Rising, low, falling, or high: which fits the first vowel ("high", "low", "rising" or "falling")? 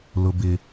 low